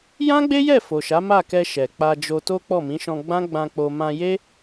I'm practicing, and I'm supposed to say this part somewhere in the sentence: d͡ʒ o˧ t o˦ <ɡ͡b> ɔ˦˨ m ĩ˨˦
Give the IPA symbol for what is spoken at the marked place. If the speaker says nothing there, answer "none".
k͡p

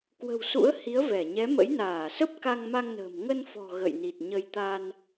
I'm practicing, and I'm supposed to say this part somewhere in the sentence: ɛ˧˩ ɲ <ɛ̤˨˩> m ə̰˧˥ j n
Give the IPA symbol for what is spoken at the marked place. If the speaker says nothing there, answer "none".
ɛ˨˦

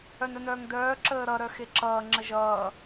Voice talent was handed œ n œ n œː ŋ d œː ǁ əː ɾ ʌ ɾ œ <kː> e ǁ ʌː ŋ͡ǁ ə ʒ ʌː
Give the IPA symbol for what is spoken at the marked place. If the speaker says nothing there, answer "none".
x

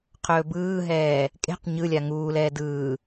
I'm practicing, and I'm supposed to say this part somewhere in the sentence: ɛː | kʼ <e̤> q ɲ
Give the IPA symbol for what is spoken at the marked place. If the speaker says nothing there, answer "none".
e̤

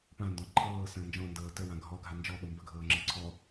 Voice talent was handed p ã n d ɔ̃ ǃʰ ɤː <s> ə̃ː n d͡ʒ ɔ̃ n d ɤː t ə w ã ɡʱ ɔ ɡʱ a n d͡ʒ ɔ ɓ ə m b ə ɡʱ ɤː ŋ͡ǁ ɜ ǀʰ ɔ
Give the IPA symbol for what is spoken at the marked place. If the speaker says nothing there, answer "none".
s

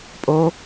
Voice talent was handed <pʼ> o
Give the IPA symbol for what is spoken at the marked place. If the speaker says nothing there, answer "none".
pʼ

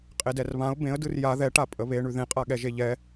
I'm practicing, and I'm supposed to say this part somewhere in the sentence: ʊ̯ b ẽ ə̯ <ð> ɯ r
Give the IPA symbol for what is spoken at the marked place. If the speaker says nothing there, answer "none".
d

